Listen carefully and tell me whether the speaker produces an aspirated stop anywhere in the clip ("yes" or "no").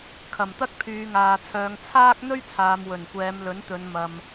yes